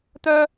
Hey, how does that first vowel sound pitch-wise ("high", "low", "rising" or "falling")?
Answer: high